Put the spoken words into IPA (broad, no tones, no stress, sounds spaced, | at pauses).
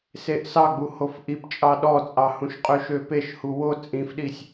s e ʔ s ɑ ɡ͡b u h o f ʔ i p t͡ʃʼ ɑ ɗ ɔ t͡sʼ ɑ h ũ ʃ qʼ ø ʃ ø p e ʃ h u w o t͡sʼ ĩ f ɗ i sʲ